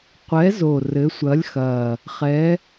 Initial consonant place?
uvular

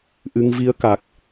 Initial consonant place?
glottal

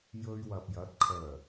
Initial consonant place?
palatal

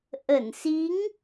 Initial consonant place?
glottal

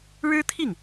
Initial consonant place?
retroflex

